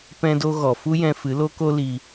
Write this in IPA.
p ɛ̃˧ d o˧ ɣ ɔ˨ f u˦ j ɛ̃˧ f ɨ˨˦ l o˦ k o˦ l i˧

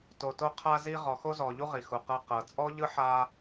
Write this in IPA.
t o˨ t o˦ qʰ a˦ z i˦ ʁ ɔ˨ x o˦ z ɔ˨ ʎ u˦ ʁ i˨ x u˨ q ɤ˦ q ɤ˨ t͡sʼ ɔ˥ ʎ ɯ˥ ħ a˦

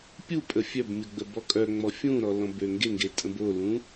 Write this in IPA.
pʲ u pʼ ə fʲ œ b mʲ u ɡ͡b ə b ɔ kʼ œ ŋ͡m ɔ fʲ ũ ɾ ɔ l ɔ̃ b ø ŋ ɡ e ŋ ɡ e tʼ ə̃ b o l ũ

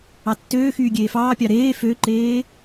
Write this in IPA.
ɑ tː øː x yː ɡʲ eː f ɑː pʲ ɑ ɾ eː f ø ǃ eː

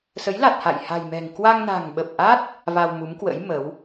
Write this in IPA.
s ə˨˦ j l a˨˩ t̚ h a̰˧˨ j h a̤˨˩ j m ɛ̤˨˩ ŋ k w a˧ ŋ n a̤˨˩ ŋ ɓ ə˨˩ p̚ ʔ a˦˥ t̚ | v a˧ w m u˨˦ m k w ə̰˧˥ j m ə˨˦ w

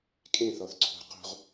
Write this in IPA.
kʼ ẽ θ ɔ θ ǀʰ ṳ q ṳ ʁ

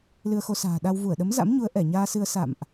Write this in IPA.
l ɨ˧ ə̯ x o˧ s a̤ː˨˩ ɗ a˧ w v u˧˩ ə̯ ɗ ə˨˦ m z a̰˧˥ m ɲ u˨˦ ə̯ ʔ ɛ˧˩ ɲ aː˧ s ɨ˧ ə̯ s a̰˧˨ m ʔ

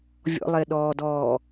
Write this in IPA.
vʲ ɔ̰ lˠ e ɗ ɔː d ɔː

